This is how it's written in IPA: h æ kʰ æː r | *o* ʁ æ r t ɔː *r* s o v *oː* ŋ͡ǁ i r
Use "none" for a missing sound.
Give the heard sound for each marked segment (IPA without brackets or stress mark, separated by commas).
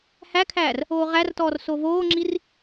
oː, r, oː